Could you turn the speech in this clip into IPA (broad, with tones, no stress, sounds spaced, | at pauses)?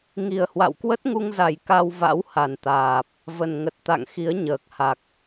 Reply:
ŋ i˨˩ ə̯ h w a̰˧˨ w k w ə˦˥ t̚ ŋ u˧ ŋ z a˨˩ j k a˧ w v a̰˧˥ w h a˨˩ n t̪ aː˨˩ p̚ | v ə˨˩ n ŋ ə˨˩ t̚ t̪ a̰˧˨ ŋ x i˨˦ ə̯ ɲ əː˨˩ k̚ h a˨˩ k̚